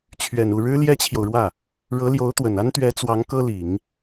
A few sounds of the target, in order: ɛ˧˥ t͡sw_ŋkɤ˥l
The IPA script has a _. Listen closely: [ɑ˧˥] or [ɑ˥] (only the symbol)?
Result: ɑ˧˥